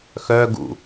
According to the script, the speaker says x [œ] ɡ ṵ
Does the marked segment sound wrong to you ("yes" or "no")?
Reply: no